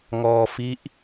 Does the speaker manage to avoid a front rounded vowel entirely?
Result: yes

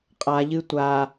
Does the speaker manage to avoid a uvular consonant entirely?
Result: no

